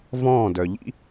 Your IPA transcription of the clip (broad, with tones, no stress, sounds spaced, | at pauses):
v ɔ̃ː˦˨ d œ˨ ʎ ḭ˦